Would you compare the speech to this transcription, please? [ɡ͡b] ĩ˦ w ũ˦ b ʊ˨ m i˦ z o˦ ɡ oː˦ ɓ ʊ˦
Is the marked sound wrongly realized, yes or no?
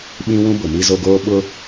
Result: yes